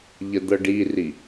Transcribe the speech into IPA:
ʎəd̪ɤɖiri

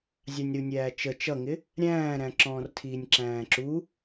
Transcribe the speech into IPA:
zʲɑnʲɾunʲæːt͡ʃə t͡ʃʌŋɪ | ɾʲæ̃ːɾæ̃ǁɔ̃ːrtʰiːnʲ ǁæ̃ːǁu

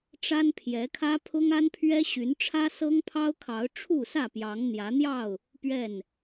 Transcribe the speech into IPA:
ʈ͡ʂa˦npʰjɛ˨˦kʰä˦ pʰʊ˦ŋa˦npʰɥɛ˦ ɕy˨˦nʈ͡ʂʰä˦ sɤ˦ŋpʰɑ˦ʊ̯kʰɑ˨˦ʊ̯ ʈ͡ʂʰu˥˨sä˥˨pjɑ˨˦ŋ n̪jä˨˦n̪jɑ˥˨ʊ̯ | pɥɛ˥˨n

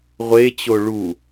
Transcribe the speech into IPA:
ʁʷet͡ɕo ɭu

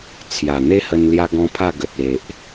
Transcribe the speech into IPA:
t͡sʰja˨˩n̪e˦hə˧n lja˦ɡɔ̃˦pʰa˥˧ ɡə˨t̚ e˨ʔ

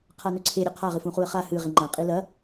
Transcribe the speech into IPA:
qʰanɵǀʰe ɾʲɵqʰa ʁɨfũχuə̯χa hɨ ʁiŋ͡ǃã qʼilɐ

